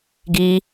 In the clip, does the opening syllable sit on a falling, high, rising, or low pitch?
high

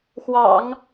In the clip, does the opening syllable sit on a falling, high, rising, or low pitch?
low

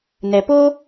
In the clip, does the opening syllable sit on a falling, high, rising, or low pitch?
low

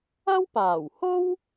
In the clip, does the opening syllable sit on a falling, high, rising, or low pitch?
high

